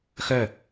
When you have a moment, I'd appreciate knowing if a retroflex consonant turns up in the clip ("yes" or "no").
no